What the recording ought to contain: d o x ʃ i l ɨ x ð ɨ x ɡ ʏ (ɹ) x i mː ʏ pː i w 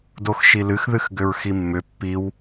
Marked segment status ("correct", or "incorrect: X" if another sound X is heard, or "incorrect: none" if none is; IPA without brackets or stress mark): correct